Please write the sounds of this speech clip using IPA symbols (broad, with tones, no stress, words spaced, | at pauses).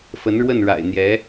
fə˧˥nɻwə˥˩nɻa̰˨˩ɪ̯n̪jɛ˧˥